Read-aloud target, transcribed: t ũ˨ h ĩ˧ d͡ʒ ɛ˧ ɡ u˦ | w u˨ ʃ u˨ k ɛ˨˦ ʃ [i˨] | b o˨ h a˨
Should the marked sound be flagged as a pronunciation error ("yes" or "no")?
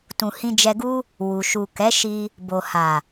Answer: yes